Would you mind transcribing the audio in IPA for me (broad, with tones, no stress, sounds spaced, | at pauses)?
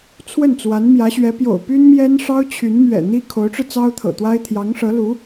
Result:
t͡sʰ w ə˥˩ n t͡s w a˧˥ n m j ä˧˥ ɕ ɥ ɛ˧˥ p j o̰˨˩ ʊ̯ p y˥ n m j ɛ˥ n ʂ ɑ˥ ʊ̯ t͡ɕʰ y˧˥ n m ɥ ɛ̰˨˩ n̪ i˥ kʰ o˧˥ ʊ̯ ʈ͡ʂ ɻ̩˧ t͡s ɑ˥ ʊ̯ t̪ʰ ɤ̰˨˩ t̪ w a˥ ɪ̯ t̪ʰ j ɑ˧˥ ŋ ʂ ɤ˧˥ l u˧˥